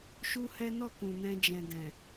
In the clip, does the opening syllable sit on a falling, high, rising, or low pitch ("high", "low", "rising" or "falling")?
high